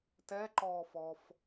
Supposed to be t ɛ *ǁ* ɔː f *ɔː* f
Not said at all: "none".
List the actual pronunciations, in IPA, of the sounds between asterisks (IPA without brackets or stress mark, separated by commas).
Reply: ǃ, ɔː